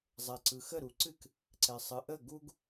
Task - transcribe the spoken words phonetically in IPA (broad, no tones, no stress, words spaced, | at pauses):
zˤɛǀɯxə ɾuǀɨk | ǀɛsˤɨʔə ɡuɡ